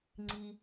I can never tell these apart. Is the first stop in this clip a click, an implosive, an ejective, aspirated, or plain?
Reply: click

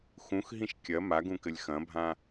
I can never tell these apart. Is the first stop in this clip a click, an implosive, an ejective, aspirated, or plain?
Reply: plain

